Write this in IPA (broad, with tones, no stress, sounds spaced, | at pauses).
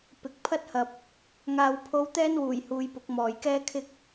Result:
p ɪ˨ k̚ pʰ ɐ˥ t̚ h ɐ˨ p̚ | ŋ aː˨ w pʰ o˧ w t̪ ɛː˥ n w uː˨˩ j h uː˨˧ j p ʊ˨˥ k̚ m ɔː˨ j k ɛː˥ kʰ ɪ˥ k̚